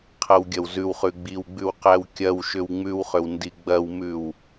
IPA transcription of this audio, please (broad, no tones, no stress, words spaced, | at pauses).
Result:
qʰɐwɡʲɐwzʉwχʉ ɡ͡biwɡ͡bʉw qæwkʲɐwʃʏw ŋ͡mʉwχʏw ndiɡ͡bɐwmʉw